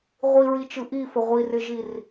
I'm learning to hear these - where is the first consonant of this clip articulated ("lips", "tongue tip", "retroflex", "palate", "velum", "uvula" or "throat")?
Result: uvula